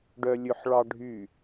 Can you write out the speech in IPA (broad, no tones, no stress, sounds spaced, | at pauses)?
ɖ œ lʲ ɵ ħ ɭ ɑ ɖʱ y